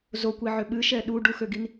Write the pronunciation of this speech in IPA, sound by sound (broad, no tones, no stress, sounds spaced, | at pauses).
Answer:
z o kʷ i ʕ ʏ ɓ ɨ ʃ ɛ ɗ u ɖ u x ø ɡ i n